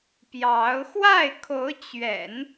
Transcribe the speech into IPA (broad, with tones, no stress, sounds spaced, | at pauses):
p j ɑ˧˥ ʊ̯ x w a˥˩ ɪ̯ kʰ o˧˥ ʊ̯ t͡ɕ ɥ ɛ̰˨˩˦ n